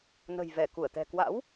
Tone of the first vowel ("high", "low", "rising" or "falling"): low